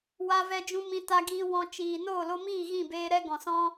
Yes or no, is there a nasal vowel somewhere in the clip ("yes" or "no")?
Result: yes